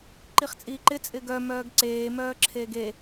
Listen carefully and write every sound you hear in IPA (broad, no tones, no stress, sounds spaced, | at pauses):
ǃ i χ t͡sʼ iː ǃ ɪ t͡sʼ ɪ ɡ œ m œː ɡ ǀ eː m œː ǁʰ eː ɡ e